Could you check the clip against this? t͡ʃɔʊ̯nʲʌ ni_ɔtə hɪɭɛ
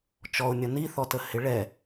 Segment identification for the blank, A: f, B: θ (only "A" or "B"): B